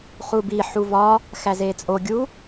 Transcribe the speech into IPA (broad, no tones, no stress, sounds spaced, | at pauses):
χ u b i ħ u v ɒ | x æ z e t͡sʼ o ɡʲ u